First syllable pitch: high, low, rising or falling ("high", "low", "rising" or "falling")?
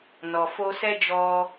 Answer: low